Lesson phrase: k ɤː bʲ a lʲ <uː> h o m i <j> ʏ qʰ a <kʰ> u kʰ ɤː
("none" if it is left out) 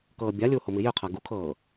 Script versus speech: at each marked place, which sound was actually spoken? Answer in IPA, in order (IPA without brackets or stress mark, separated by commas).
uː, j, ɡ